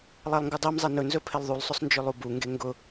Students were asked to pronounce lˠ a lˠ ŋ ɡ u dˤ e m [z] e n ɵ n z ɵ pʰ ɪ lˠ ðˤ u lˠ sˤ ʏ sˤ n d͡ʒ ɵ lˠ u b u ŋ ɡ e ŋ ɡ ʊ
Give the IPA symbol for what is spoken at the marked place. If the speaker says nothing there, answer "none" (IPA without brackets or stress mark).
zˤ